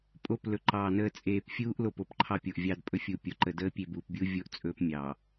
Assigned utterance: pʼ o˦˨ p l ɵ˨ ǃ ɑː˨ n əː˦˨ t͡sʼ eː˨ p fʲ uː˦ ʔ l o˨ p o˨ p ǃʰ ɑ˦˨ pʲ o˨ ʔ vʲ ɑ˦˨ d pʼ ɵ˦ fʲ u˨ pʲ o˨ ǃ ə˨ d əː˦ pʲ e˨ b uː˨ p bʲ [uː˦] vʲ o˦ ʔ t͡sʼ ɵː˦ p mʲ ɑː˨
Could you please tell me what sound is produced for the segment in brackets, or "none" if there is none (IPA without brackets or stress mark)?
u˦